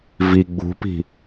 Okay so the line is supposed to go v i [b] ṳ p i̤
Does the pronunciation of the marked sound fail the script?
yes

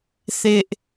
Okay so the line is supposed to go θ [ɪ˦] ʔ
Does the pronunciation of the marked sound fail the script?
no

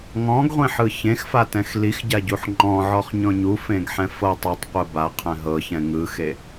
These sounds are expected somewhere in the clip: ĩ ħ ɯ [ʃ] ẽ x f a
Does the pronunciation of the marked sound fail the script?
yes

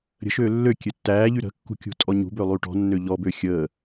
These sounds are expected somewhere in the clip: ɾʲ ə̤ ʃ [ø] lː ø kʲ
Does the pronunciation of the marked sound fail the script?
yes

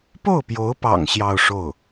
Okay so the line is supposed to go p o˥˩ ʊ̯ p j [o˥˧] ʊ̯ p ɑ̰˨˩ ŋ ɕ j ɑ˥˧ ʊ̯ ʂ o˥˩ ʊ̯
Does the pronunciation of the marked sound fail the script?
yes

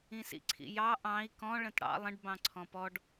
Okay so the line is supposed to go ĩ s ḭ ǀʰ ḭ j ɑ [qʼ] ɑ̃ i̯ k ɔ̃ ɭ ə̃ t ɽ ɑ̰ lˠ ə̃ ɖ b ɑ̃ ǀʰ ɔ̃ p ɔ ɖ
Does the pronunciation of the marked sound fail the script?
yes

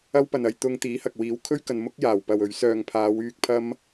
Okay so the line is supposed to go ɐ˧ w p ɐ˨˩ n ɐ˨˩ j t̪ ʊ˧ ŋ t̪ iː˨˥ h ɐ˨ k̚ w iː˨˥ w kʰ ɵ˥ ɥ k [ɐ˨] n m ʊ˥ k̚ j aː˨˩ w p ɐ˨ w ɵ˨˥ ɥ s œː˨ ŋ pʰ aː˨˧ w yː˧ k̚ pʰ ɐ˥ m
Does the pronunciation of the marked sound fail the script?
no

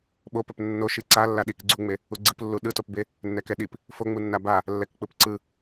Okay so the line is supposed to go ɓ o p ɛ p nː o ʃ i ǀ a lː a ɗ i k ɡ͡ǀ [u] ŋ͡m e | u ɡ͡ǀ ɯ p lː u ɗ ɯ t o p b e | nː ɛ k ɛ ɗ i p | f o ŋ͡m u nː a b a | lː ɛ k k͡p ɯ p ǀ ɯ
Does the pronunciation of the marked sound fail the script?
no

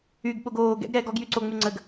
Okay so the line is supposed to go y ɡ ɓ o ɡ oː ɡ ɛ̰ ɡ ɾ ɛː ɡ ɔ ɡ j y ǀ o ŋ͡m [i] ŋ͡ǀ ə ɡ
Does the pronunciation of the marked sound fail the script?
yes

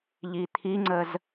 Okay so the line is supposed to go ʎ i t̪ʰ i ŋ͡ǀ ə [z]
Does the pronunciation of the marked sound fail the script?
no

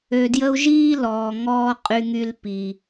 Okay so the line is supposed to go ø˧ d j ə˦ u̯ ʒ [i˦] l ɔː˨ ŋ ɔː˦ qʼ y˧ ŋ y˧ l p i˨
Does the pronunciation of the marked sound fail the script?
yes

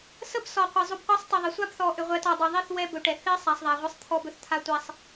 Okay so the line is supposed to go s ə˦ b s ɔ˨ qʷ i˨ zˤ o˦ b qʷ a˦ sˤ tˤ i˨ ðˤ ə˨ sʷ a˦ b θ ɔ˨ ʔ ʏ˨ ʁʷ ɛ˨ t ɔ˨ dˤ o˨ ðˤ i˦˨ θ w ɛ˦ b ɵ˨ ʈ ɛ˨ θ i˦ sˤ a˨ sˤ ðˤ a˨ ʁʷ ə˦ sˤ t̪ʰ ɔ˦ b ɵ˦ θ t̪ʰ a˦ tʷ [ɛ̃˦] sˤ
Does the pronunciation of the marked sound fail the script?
yes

